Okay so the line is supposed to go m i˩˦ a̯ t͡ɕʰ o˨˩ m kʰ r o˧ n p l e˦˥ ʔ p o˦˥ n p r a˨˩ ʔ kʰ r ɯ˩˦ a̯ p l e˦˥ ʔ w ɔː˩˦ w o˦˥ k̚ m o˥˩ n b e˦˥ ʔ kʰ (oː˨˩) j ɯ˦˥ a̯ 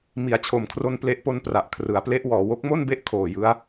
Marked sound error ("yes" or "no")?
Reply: no